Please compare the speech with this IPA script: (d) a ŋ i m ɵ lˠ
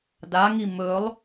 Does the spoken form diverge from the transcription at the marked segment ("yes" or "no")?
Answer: no